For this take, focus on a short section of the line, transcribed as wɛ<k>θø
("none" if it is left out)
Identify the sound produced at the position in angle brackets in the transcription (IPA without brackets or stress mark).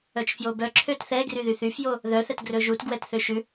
t